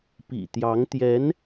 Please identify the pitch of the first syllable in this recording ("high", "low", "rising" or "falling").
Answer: low